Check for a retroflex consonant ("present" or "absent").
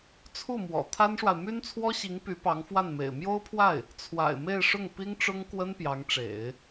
present